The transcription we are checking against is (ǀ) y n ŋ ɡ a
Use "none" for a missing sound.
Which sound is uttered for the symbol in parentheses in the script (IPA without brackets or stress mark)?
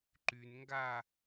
ǃ